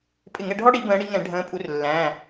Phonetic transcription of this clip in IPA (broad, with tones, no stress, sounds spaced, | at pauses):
pʼ ɪ˧˩˧ ŋ ɛ˧˩˧ ɖʱ ɔ˥ ɽ i˧˩˧ b ə̃ː˨˦ ɽ i˨˦ ŋ ɛ̃˧˩˧ ɖʱ ə̃ː˨˦ pʼ u˨˦ r lː æ̃ː˩˧˩